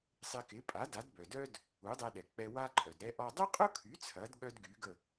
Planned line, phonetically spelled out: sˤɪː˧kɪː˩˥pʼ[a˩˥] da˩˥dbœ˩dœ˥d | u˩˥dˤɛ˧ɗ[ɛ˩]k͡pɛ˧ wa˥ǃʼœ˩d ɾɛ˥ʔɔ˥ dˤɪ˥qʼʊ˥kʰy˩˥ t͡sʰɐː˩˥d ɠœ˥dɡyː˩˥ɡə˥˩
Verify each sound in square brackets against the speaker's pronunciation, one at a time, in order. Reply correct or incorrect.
correct, correct

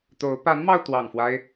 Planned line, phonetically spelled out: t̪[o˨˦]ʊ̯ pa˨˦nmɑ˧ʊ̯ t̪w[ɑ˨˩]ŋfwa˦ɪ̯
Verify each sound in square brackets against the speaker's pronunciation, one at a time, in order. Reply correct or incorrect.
correct, correct

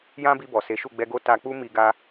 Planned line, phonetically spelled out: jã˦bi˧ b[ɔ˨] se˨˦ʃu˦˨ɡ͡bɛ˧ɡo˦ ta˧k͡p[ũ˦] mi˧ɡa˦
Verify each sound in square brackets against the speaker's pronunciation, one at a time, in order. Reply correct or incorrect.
correct, incorrect

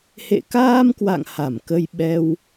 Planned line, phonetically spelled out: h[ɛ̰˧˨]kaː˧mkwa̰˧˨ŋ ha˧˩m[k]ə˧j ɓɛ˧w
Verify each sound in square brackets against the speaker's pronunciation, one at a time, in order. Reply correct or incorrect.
incorrect, correct

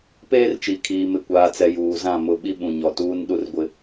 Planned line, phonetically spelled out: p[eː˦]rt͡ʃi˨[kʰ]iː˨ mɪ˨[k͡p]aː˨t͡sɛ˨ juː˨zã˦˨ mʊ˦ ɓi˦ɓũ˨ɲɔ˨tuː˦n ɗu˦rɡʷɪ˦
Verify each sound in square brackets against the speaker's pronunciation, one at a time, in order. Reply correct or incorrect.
correct, correct, incorrect

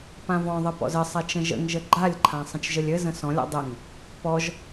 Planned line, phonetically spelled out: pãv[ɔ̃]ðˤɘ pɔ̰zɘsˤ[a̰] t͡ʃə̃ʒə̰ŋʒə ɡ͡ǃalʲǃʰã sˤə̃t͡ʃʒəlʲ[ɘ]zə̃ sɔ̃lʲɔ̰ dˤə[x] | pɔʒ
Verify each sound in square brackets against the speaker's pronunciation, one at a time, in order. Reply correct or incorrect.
correct, incorrect, correct, incorrect

